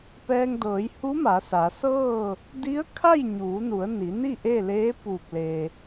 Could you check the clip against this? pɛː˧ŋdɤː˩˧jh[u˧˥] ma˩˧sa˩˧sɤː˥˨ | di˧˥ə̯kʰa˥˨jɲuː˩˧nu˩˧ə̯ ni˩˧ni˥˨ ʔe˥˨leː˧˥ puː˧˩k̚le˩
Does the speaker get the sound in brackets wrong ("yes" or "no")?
no